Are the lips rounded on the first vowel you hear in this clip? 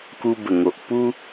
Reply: yes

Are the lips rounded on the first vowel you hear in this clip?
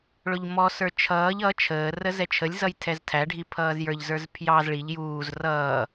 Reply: yes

